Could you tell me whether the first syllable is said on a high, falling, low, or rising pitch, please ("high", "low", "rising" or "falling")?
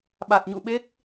low